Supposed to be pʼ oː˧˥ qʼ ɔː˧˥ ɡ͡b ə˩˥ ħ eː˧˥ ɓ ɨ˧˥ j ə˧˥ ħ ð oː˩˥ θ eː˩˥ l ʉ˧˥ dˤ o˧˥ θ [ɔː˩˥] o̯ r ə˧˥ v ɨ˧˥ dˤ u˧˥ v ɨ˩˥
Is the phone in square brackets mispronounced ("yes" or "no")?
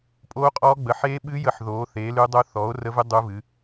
no